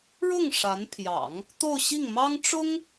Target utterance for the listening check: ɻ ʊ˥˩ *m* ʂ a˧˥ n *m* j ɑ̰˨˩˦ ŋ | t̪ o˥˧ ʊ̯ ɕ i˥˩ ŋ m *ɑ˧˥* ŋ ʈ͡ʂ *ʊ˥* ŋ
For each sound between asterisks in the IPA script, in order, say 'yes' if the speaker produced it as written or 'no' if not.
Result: no, no, no, yes

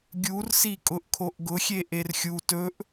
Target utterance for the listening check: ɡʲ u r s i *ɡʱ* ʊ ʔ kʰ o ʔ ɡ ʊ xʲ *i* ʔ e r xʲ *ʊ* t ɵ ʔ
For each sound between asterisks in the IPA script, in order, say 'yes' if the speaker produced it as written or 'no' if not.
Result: no, no, no

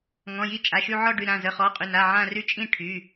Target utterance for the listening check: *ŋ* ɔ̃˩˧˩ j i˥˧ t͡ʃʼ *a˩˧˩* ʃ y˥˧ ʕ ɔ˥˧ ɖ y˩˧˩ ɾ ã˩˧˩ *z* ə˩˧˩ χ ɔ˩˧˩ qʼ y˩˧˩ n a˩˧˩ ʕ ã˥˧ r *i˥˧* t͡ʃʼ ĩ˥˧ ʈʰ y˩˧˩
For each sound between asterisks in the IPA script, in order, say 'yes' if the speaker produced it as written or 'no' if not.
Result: yes, yes, yes, no

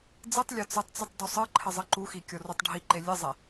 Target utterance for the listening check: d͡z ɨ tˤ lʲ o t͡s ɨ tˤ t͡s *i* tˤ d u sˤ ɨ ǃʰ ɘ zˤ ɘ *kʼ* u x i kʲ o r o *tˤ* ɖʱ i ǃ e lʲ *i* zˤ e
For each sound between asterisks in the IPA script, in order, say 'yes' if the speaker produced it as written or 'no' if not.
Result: no, no, yes, no

